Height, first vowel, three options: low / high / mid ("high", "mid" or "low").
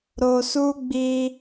mid